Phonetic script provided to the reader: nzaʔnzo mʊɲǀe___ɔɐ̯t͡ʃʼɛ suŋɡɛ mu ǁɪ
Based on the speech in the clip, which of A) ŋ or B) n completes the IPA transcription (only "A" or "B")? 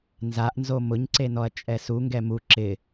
B